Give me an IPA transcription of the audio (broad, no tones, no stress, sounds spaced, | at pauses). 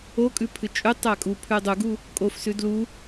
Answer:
o kʼ ʉ pʰ ɨ t͡ʃʼ ʉ tˤ a kʼ u pʰ ʉ dˤ u ɡ u | kʼ o f s ʉ d l u